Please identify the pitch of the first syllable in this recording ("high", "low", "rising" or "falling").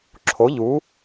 rising